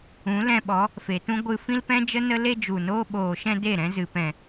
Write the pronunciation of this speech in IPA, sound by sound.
ũ˨˦ l ɛ̃˧ ɓ ɔ˨˦ | f e˨ t ũ˦ ɡʷ ɨ˧ f ĩ˦ l p ɛ̃˦ d͡ʒ ə˦ n ə˦ l e˦ d͡ʒ u˨ n oː˦ ɓ oː˨ ʃ ɛ̃˧ d e˦˨ ɾ ɛ̃˦ z ɨ˨ p ɛ̃˨

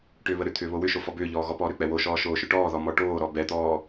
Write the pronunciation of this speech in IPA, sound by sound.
ʈ ʏː β ə ɾ ʏ t̪ʰ ʏː β o w ʏ ʃ o f ɔ b ʏː ʎ ɔː ɣ ɔ p ɔː ɾ ʏ k͡p ɛ w o ʃ ɔː ʃ oː ʃ ʏ ʈ ɔː ð ɔ m ɔ ʈ oː ɾ ɔ b ɛ t̪ ɔː

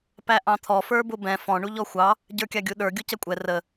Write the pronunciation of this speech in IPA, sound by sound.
p æ ʔ ɑ̃ t̪ʰ ɔ f ə˞ b ʊ b ɛ̃ f ɔ̃ ɳ u ʎ ɔ xʷ ɑ | ɟ ə˞ kʲ ɑ ɡʲ u ɗ ə˞ ɡʲ u c ɛ kʷʼ ɛ r ə

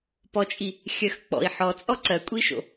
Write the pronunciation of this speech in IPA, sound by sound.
p ɔ t͡ʃʼ i | xʲ ɜ x k͡p ɔ̰ i̯ ħ ɔ t͡sʼ ɔ ǀ ɜ kʷʼ i ʃ o̰

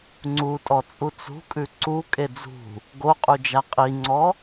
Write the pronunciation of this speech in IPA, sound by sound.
ŋ͡ǀ u tʼ ɔ t͡sʼ u t͡s ṳ kʼ ʉ ǀ u kʼ e d͡z ṳ | ɡ o qʼ u d͡ʒ a qʼ i ŋ͡ǀ ɔ

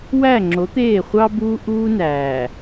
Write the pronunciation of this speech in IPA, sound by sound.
w æ˦˨ ŋ͡ǁ o˨˦ t̪ eː˦˨ χʷ ɑ˦ b uː˦ ʔ uː˦ n æː˨

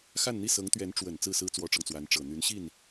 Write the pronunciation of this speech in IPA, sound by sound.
x a˥˧ n n̪ i˥˩ s ɤ˧˥ ŋ t̪ ɥ ɛ˧˥ n ʈ͡ʂ w ə˨˩ n t͡s ɹ̩˥˩ s ɹ̩˥ t͡s w ɔ˥ ʈ͡ʂ ɤ˨ ŋ t͡s w a˧˥ n ʈ͡ʂ ɤ˨˩ n̪ y˧˥ n ɕ i˥˩ n

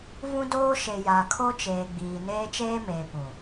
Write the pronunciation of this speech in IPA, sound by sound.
v ũ˦ d oː˦ ʃ e˨ j a˨ kʰ o˦ t͡ʃ eː˨ ɡ͡b iː˨ n eː˦ t͡ʃ eː˦ m eː˨ p ũ˨

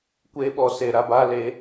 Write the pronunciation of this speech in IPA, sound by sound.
kʷ eː˧ ɓ ɔ˨ s e˨ ɾ a˧ b aː˧ l e˨˦

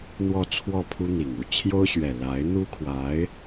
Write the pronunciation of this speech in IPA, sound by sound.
n̪ w ɔ˥˧ t͡sʰ w ɔ˥˩ pʰ u˥ n̪ i˨˩ ŋ u˥˩ t͡ɕʰ j o˥ ʊ̯ ɕ ɥ ɛ˨˩ l a˧˥ ɪ̯ n̪ u˥ kʰ w a˧˥ ɪ̯

